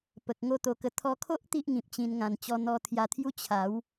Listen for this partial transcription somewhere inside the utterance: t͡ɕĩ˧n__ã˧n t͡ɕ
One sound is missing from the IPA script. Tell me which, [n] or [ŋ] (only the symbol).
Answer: ŋ